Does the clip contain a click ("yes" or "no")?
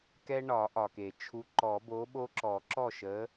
yes